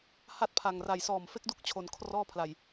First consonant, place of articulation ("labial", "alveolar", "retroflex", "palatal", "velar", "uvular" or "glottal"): glottal